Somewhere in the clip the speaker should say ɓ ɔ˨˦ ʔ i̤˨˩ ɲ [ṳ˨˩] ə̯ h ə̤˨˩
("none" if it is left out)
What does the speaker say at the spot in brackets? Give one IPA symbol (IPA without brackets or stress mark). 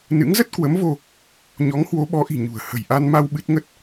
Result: ṳ˨˩